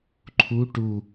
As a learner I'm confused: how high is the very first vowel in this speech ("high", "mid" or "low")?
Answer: high